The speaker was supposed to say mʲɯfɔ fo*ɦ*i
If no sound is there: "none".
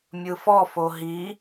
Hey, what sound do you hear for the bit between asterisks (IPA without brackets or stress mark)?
ɦ